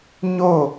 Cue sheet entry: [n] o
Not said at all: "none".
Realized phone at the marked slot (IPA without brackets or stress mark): ɲ